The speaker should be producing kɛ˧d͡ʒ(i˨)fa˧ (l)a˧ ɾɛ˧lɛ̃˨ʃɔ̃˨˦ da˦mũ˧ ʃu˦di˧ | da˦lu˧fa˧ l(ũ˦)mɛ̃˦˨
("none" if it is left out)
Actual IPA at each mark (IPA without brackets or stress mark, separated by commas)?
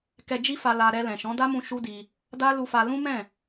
i˦, l, ũ˦